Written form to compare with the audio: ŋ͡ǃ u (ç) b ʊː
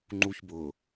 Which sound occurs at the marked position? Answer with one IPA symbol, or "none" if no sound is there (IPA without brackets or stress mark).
ç